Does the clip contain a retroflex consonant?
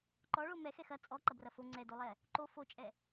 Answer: yes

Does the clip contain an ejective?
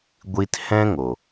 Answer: no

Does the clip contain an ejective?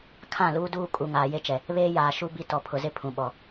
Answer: yes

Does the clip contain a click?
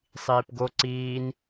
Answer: yes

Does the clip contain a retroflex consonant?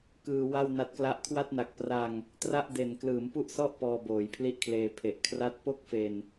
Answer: no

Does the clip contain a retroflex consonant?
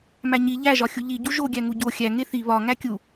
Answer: no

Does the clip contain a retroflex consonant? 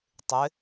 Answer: no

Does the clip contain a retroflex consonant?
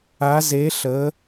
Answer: no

